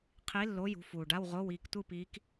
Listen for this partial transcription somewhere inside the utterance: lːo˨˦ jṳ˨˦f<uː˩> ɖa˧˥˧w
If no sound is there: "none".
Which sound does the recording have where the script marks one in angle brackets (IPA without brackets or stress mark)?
uː˩